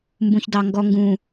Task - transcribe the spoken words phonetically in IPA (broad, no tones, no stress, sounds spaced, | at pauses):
m b ũ ç d ɑ ŋ ɡ ɔ ŋ ɡ ũ